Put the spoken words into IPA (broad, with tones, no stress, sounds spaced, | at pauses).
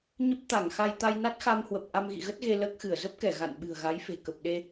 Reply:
ɲ ə˦˥ p̚ t̪ a˧˩ ŋ x a˧ j t̪ a˧ j n a˦˥ t̚ x a˧ m h w ə˨˩ p̚ ʔ a˧ m ɣ ḭ˧˨ ɣ ə˦˥ t̚ ɣ e˧ l əː˦˥ k̚ x ɨ˧˩ ə̯ z ə˦˥ p̚ k ɛ˧˩ ɣ a̰˧˨ n ɓ ɨ̤˨˩ ə̯ ɣ a˨˦ j f e̤˨˩ k ə˨˩ p̚ ɗ e˧